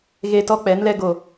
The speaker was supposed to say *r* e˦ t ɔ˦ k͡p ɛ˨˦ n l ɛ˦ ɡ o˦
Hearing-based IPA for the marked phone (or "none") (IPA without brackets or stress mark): ɣ